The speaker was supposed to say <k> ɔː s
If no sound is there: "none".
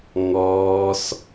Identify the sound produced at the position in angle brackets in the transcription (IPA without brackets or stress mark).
ŋ